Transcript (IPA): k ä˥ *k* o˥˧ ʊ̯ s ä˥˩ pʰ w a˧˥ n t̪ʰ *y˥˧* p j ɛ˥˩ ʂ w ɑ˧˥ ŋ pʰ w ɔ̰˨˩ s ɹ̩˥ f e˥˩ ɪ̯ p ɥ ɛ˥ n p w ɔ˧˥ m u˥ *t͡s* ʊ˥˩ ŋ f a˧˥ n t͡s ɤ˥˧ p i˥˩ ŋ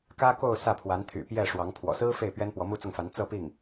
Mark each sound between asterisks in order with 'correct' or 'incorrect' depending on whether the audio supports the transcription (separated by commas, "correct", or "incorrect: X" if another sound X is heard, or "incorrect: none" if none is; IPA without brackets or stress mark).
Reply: correct, incorrect: y̰˨˩, correct